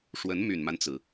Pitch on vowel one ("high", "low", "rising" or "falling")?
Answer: rising